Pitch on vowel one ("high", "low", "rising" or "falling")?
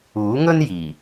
rising